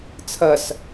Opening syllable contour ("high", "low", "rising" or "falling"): low